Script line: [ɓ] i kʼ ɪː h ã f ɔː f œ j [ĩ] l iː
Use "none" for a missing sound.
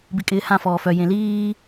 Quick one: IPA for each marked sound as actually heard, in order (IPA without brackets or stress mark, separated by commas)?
b, ẽ